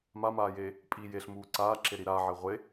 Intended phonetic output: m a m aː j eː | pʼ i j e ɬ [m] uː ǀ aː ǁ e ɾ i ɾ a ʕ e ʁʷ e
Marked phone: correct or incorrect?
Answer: correct